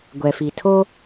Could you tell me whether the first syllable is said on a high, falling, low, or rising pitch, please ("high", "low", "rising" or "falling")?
low